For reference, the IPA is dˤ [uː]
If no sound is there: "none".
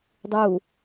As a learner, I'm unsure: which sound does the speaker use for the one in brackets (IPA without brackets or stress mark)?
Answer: uː